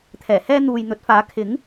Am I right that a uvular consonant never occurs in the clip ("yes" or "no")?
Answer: yes